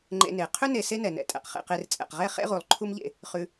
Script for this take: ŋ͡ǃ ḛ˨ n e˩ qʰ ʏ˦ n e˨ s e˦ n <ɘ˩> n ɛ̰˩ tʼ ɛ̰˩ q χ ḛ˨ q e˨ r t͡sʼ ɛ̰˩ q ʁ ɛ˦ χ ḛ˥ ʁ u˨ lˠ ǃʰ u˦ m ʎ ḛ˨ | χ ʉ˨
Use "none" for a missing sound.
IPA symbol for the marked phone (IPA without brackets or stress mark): ɛ˩